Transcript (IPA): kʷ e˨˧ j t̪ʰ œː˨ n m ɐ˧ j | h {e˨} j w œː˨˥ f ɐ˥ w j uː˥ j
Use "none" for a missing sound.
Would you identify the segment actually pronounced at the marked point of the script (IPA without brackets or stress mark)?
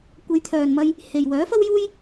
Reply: e˨